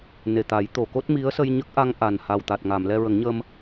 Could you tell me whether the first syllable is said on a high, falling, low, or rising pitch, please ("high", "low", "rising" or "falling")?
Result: low